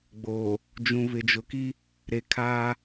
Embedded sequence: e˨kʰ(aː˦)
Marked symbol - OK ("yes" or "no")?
yes